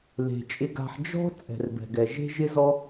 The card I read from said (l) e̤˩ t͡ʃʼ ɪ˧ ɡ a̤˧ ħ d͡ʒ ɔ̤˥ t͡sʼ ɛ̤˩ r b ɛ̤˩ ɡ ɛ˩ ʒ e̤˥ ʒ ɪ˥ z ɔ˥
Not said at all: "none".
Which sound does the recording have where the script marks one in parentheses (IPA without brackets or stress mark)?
l